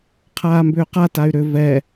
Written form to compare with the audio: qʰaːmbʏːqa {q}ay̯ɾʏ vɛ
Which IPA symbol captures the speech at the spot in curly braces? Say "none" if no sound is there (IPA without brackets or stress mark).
t